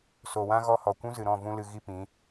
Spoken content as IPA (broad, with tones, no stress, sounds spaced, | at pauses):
s o˨ w ã˦ ɣ ɔ˦ h ɔ˨ kʷ ũ˦ z ɨ˨ ɾ ɔ̃˦˨ v ũ˦ l ɨ˧ ɣ i˦ p ĩ˨˦